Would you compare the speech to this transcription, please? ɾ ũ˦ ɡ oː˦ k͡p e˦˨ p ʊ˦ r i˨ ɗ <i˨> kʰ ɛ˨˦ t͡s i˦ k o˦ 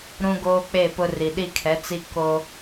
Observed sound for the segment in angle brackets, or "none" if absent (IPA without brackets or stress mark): i˦